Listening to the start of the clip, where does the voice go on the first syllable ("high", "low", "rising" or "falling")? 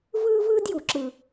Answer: high